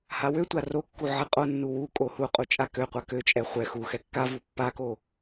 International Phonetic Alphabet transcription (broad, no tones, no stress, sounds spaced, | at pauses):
h a w ø tʷ a r o kː u ʕ ɛ qʼ o nː u w u kʼ o h u qʼ u t͡ʃʼ a k ø qʷ a k ø t͡ʃʼ ɛ χʷ ɛ x u x ɛ kː a v u pː a k o